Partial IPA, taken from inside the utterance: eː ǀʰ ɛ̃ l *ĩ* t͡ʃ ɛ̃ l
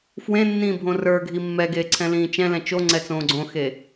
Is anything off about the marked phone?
yes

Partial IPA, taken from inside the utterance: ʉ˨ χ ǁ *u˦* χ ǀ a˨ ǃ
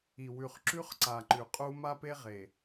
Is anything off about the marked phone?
yes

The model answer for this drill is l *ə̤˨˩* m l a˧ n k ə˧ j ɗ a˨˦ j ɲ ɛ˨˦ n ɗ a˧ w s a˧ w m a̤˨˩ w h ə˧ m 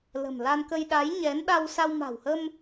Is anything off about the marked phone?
no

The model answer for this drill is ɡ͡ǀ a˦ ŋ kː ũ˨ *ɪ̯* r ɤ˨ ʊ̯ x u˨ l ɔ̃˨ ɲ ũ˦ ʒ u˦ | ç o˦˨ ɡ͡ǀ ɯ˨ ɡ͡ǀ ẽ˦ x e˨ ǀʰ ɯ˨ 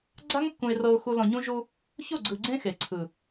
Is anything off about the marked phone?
no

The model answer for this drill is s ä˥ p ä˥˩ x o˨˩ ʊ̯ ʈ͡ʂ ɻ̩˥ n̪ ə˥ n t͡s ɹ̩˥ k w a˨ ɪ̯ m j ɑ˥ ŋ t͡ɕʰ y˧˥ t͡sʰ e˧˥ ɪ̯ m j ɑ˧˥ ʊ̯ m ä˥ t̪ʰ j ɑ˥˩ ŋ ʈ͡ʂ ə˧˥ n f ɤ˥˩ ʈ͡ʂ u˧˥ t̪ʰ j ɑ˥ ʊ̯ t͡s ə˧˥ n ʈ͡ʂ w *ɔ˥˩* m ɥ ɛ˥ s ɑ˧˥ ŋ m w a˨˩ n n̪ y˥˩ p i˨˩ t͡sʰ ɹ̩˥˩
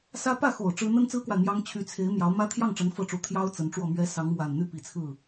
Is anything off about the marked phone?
no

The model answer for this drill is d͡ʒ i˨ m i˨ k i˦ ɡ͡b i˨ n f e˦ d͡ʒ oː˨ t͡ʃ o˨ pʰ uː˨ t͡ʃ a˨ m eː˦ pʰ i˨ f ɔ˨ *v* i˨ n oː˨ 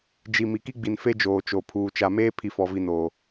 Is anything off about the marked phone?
no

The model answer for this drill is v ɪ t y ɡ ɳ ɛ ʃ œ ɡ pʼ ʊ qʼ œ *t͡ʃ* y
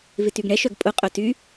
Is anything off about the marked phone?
yes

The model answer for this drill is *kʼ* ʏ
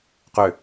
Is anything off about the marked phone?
yes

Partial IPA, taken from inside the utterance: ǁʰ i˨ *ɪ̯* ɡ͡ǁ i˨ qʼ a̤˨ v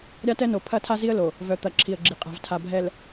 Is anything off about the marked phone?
yes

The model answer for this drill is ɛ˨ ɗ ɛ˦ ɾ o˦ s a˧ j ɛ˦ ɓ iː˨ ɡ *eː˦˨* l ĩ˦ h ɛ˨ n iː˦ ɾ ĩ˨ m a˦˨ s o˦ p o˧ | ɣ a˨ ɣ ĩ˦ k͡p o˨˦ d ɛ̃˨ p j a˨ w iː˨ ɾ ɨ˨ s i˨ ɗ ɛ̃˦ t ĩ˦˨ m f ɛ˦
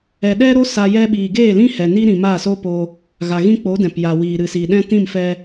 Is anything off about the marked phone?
no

